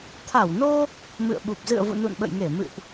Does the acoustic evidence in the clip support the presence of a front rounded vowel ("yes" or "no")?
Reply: no